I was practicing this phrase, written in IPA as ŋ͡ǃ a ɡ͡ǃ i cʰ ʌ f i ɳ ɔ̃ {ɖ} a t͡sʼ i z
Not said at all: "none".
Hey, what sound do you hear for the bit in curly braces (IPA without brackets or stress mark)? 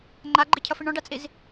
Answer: ɖ